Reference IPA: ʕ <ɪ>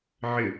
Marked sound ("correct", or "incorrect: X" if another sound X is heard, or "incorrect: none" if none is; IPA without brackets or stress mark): correct